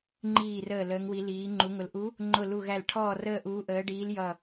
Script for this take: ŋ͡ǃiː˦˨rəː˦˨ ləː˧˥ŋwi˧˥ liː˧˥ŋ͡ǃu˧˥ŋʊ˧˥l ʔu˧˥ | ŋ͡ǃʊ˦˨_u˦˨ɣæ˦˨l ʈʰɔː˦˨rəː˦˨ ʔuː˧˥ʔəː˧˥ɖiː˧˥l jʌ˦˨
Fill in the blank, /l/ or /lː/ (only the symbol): l